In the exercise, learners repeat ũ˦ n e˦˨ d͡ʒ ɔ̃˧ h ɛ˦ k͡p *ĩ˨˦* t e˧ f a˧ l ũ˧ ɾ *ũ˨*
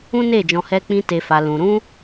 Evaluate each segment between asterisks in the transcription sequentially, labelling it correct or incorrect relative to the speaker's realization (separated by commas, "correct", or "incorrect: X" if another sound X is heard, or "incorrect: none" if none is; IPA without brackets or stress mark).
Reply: incorrect: ĩ˦, incorrect: ũ˦